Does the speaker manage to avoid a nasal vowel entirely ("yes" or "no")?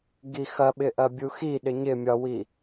yes